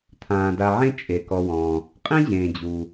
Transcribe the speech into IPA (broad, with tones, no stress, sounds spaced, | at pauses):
t̪ʰ ãː˩ d a˨ ʕ ẽ˦ t͡ʃʼ e˩ k ɔ˨ w ɔ̃ː˩ | qʼ ĩ˥ ʑ ẽː˩ d͡ʑ u˩